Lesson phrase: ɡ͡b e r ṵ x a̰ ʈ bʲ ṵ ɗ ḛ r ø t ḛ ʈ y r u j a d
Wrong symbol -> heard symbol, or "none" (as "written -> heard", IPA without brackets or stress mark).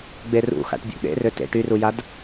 none